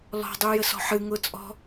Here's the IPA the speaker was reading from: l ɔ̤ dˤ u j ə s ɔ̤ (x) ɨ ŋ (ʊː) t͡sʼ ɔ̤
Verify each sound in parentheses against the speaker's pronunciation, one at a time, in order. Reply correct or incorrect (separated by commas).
incorrect, correct